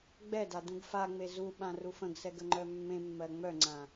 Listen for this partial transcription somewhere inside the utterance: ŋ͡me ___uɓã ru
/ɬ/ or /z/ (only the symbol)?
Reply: z